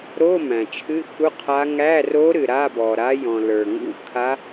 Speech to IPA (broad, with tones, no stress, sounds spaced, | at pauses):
ɾ o˧˥˧ m æ̃˩ t͡ʃʰ ɨ˧˥˧ x u˧˥˧ qʰ a˧˥ ŋ æ˧˥˧ r o˧˥ ɾ ɨ˩ ɾ a˧˥˧ b ɔ˩ ɾ a˧˥ j ɔ̃˩ l ə˞˩ ŋ ṵ˧˥˧ kʰ a˧˥